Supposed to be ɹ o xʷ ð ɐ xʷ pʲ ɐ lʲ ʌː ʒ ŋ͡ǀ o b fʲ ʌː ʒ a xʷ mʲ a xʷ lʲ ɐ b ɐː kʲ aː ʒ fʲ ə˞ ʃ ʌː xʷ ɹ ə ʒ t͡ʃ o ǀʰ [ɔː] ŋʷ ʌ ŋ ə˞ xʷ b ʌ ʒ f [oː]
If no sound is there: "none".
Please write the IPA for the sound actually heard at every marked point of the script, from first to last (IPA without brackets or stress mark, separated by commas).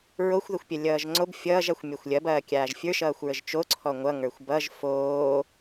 ɔ, oː